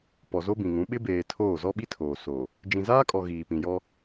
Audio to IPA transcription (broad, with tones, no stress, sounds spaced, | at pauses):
p ɔ˨ z o˦ b ĩ˨ ŋ ũ˨˦ ɓ ɪ˦ b eː˨ tʰ oː˦˨ z ɔ˦ ɓ i˦ tʰ oː˨ s o˨ | d͡ʒ ĩ˨ z aː˦ kʼ ɔ˨ ɣ iː˨ p ĩ˨ j ɔ˦